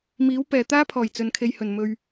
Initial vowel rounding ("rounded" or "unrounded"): unrounded